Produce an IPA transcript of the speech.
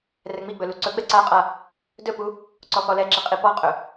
r ɛ ŋ͡m i ɡ͡b ɵ l u ǀ ɵ ɡ͡b ɛ ǀ a qʼ a | d ɵ p u | ǀ ɔ x ɔ l ɛ ǁ i qʼ i p ɔ qʼ ɵ

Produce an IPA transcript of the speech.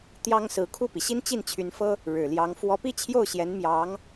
t̪ j ɑ˥ ŋ s ɹ̩˧˥ kʰ u˥˩ p i˩ ɕ i˥ n t͡ɕ i˥˩ n t͡ɕʰ y˧˥ n f ɤ˥ | ɻ ɻ̩˨˩ l j ɑ˧˥ ŋ f w ɔ˧˥ p i˥ t͡ɕʰ j o˥˩ ʊ̯ ɕ j ɛ˧˥ n m j ɑ˧˥ ŋ

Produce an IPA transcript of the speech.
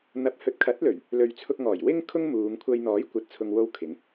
n̪ ɐ˨˥ p̚ h ɵ˨˥ t̚ kʰ ɐ˨˥ t̚ l ɵ˨˩ ɥ | l ɵ˨ ɥ t͡sʰ ʊ˧ k̚ ŋ ɔː˨˩ j w ɪ˥ ŋ kʰ ʊ˥ ŋ m uː˨˧ ŋ kʷʰ ɐ˧ j n̪ ɔː˨˥ j kʷ ɐ˨ t̚ t͡sʰ ʊ˨ ŋ w o˧ w kʰ ɪ˨˧ ŋ

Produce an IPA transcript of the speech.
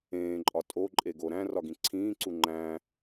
ẽː ǃʼ ɒ tʼ o ǃʼ e ɡ o ɾ æ̃ r ɒ ɡ ĩ ǀʰ ĩː ǀ u ŋ͡ǃ æ̃

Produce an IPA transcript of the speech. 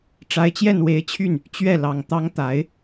ʈ͡ʂ a˧˥ ɪ̯ t͡ɕ j ɛ˥˩ n w e˧˥ ɪ̯ t͡ɕʰ y˥˩ n | t͡ɕ ɥ ɛ˥˩ l ɑ˨˩ ŋ t̪ ɑ˧˥ ŋ t̪ a˨˩˦ ɪ̯

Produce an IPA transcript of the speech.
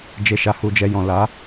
d͡ʒ e˧ ʃ a˧ h u˧ d͡ʒ ɛ˧ j ɔ̃˨ l a˨˦

